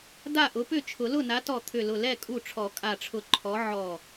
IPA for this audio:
d a˥˩ ʔ ʊ˨˥ p ʏ˥˩ t͡ʃʰ ʊ˨˩˦ l ʊ˥˩ n a˨˥ t ɔ˧˩ t̪ʰ ʏ˧˩ l ʊ˧˩ l ɛ˥˩ kʼ u˧˩ ʈ͡ʂʰ ɔ˨˩˦ kʼ a˧˩ ʈ͡ʂʰ ʊ˧˩ ǃʰ ɔ˨˥ ʕ ɔ˧˩

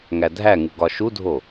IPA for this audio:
ŋ æ dʱ æ ŋ u ɡ ɒ ʃ u dʱ o

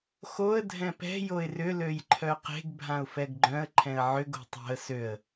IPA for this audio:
x o ə̯ dʱ ɛ̃ p ɛ̤ j o ɪ̯ r ʏ l ø j ǃʰ œ q e̤ ɡ bʱ ã ʊ̯ f ɛ ɡ ɡ͡ǃ œ̃ ə̯ ǃʰ ɛ̃ ə̯ ʕ ʏ ɡ o̤ tˤ o̤ ə̯ s ø ə̯

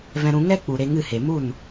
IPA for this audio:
v ɛ̃˧ ɾ ũ˧ ŋ ɛ˦ k͡p u˨ ɾ e˧ ŋ ɨ˦˨ h e˨ m u˦˨ n

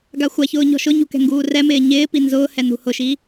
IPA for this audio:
ɡ a xʷ a ç ʊː ɲ ɔ̤ ʃ ʊ ɲ ṳ k ɛ̤ ŋ ɡ uː r ɛ m ɪː ɲ ɪː p i n z ʊː h ɛ n ṳ h ʊ ʃ i

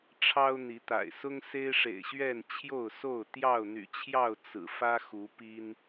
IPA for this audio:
ʈ͡ʂʰ ɑ˦ ʊ̯ n̪ i˨˦ t̪ a̰˨˩ ɪ̯ s ʊ˦ ŋ s e˦ ɪ̯ ʂ ḛ˨˩ ɪ̯ ɕ ɥ ɛ˥˨ n t͡ɕʰ j o˥˨ ʊ̯ s o˥˨ ʊ̯ t̪ j ɑ˥˨ ʊ̯ n̪ y̰˨˩ t͡ɕʰ j ɑ˥˨ ʊ̯ t͡s ɹ̩˨˩ f ä˦ x u˨˦ p i˦ n

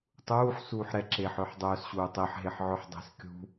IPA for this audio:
tˤ uː ħ s uː ħ ɾ ɛ ǁ eː ħ œ ħ dˤ œː s ɕ uː tˤ e ħ ɦ e ħ ʕ œ ħ dˤ e̤ s kʲ ṳ

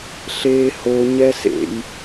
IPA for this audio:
ɬ eː h o ɲ ɛ s ḛ j

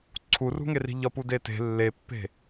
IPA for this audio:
ǀʰ u r ṳ ŋ e r i̤ ʎ ɒ p u d e t e̤ lː e pː e̤

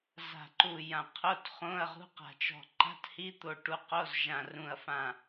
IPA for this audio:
z a̤˧˩ ǃ u˧˩ j ã˧˩ qʰ o˧˥˧ t χ õ˧˥˧ ɐ̯ ʁ ṳ˧˥˧ q a̤˧˩ t͡ʃ ɔ̤˧˩ ǃ a̤˧˥˧ t h i˧˥˧ t̪ o˧˩ ʈ u˧˩ q o˧˥˧ z ʒ ã˧˩ r ũ˧˩ ɐ̯ f ã˧˩

